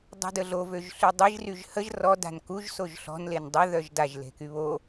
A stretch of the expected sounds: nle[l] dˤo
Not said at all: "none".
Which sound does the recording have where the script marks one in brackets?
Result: n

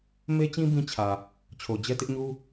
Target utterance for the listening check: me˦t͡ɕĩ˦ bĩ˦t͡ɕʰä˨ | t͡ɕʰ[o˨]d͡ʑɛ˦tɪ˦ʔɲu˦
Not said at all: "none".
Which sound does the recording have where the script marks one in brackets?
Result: o˨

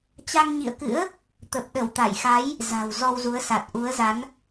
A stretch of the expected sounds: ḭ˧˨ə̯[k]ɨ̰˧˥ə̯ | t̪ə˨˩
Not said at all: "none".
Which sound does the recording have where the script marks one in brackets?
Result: k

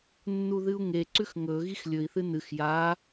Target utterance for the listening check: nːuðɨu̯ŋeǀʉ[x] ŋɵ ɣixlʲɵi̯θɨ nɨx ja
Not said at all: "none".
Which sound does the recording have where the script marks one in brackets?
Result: x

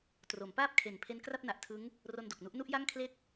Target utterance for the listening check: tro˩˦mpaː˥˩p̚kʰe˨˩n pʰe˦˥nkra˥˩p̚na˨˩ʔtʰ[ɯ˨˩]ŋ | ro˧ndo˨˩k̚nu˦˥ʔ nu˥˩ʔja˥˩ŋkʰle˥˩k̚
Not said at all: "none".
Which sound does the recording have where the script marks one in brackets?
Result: ɯ˦˥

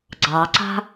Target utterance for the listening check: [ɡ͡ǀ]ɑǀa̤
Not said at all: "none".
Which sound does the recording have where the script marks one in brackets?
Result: ɡ͡ǀ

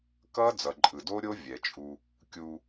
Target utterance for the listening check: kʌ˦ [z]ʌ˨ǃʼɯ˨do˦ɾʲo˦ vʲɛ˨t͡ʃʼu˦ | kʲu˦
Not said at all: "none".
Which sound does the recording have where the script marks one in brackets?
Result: d͡z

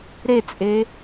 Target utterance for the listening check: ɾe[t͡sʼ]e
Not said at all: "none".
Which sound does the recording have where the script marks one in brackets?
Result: t͡sʼ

